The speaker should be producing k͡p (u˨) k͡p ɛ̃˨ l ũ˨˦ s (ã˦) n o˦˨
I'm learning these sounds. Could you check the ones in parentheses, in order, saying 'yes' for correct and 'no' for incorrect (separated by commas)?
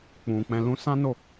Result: no, yes